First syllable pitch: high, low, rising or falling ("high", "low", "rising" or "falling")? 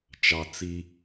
low